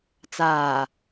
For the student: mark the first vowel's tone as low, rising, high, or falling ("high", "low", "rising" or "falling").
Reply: low